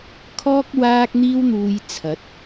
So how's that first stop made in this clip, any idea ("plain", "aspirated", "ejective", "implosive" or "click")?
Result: aspirated